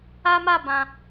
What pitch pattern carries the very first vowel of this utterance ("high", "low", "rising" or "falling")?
high